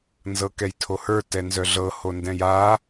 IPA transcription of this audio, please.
n z ɤ k ɛ j tʰ o h ə˞ t ɛ n z œ ɮ ɤ h o n d ɛ̃ j a

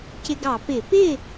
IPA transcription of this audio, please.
c ɪ˧ ɡ ɑ˧˩˧ p ɪ˧˩˧ p ɪ˥˨

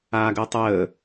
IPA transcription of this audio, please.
aː ɡ əː tˤ əː

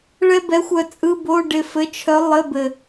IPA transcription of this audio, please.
ɭ ɛ˥ b ɛ˧˥ xʷ œ˦˨ t͡sʼ ɯ˧˥˧ b o˧˥˧ ɖ ɪ˦˨ f ɘ˧˥ t͡ʃʰ œ˧˥ lˠ ɘ˧˥˧ b ɘ˨

